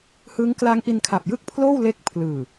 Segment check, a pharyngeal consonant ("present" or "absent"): absent